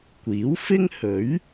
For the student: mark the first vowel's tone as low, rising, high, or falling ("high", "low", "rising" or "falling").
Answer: rising